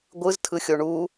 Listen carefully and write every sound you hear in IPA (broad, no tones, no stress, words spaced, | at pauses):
ɡʷɯztʰɯxʲo ɳu